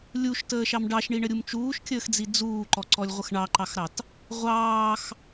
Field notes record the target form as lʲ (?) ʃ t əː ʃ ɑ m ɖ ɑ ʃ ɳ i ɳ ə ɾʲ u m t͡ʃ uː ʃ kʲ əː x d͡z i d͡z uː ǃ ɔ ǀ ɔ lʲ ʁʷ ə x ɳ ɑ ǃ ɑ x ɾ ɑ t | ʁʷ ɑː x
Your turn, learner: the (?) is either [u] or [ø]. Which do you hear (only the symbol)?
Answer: u